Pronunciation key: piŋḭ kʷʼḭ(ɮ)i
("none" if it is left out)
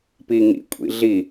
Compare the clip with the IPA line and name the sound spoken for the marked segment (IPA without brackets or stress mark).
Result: ɮ